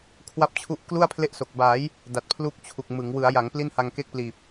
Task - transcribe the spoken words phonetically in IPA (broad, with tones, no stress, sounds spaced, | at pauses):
kʰ w a˦˥ p̚ t͡ɕʰ u˦˥ ʔ k l u˥˩ a̯ pʰ l e˥˩ ʔ s o˨˩ k̚ b aː˩˦ j | d a˨˩ t̚ pʰ l u˦˥ k̚ t͡ɕʰ u˨˩ k̚ m ɯ˩˦ ŋ w ɯ˩˦ a̯ j a˩˦ ŋ p l i˥˩ n h a˧ ŋ k e˥˩ k̚ p l iː˨˩ p̚